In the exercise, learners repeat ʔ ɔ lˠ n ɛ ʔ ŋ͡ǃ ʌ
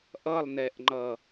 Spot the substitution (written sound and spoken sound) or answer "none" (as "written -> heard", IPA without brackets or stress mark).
ɔ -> ʌ